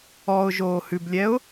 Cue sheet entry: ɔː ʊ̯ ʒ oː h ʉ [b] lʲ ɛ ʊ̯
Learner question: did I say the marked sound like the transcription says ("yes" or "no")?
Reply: yes